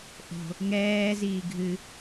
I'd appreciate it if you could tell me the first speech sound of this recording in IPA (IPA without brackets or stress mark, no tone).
ʔ